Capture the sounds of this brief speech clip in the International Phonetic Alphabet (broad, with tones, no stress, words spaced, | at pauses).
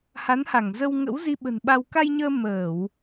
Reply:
ha˨˦nha˧˩ŋ zə˧wŋə̰˧˥wzi˧ ɓə̤˨˩nɓa˧w ka˧jɲəː˧ məː˧˩˨w